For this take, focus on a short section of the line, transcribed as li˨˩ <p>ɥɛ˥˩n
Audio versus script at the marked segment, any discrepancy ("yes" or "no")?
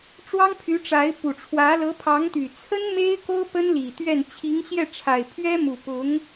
yes